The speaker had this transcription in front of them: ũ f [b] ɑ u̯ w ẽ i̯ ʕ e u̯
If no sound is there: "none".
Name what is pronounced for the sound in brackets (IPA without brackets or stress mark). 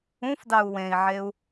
d